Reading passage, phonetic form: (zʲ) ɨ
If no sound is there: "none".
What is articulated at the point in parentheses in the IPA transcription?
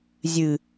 zʲ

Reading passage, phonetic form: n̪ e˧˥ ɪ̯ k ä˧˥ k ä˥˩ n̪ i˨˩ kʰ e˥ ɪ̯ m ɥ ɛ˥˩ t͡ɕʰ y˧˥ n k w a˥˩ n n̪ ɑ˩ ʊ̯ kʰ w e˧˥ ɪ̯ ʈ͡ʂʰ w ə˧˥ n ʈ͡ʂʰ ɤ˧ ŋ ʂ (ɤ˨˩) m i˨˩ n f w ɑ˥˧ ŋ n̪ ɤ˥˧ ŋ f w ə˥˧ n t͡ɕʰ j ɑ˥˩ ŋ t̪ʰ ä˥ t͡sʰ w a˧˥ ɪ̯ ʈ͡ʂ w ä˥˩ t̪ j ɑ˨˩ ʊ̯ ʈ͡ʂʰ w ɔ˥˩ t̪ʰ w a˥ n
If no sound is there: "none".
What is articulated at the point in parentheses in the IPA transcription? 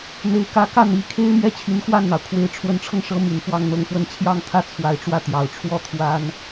ɤ˧˥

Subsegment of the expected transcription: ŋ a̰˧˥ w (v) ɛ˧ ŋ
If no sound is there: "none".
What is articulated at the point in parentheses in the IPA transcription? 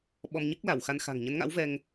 v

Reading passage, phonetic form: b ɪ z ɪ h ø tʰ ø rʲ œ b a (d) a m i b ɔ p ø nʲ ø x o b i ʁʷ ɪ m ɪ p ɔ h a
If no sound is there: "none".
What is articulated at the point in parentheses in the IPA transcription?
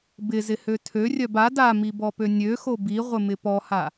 d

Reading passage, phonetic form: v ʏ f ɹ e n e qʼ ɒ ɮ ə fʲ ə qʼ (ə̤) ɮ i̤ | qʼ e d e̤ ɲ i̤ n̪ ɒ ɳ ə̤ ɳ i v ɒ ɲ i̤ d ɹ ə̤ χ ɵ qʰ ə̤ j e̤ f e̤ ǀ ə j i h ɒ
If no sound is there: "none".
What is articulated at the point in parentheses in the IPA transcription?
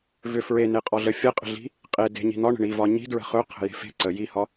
ə̤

